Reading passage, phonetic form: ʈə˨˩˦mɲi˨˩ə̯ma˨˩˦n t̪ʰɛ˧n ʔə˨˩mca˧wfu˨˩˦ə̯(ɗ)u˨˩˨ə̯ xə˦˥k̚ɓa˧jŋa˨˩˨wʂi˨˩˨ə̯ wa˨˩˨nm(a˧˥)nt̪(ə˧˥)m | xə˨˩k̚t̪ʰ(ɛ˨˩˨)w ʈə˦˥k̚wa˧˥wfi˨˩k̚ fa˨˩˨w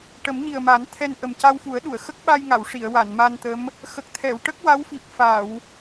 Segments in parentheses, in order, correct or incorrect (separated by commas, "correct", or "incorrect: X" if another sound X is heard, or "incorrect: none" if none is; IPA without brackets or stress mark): correct, incorrect: a˧, correct, correct